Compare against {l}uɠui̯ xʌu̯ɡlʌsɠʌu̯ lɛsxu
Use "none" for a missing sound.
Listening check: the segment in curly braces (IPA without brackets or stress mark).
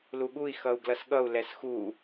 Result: l